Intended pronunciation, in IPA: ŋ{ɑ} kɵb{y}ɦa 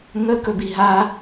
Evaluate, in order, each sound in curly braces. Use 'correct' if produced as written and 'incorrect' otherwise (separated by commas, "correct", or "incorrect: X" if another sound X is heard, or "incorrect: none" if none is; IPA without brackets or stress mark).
incorrect: ə, incorrect: i